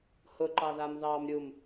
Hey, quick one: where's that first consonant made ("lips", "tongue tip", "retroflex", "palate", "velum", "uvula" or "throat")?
throat